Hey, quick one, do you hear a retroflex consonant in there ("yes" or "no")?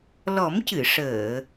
yes